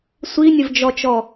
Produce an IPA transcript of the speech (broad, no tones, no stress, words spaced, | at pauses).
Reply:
sʷinʲəvd͡ʒɔt͡ʃɔ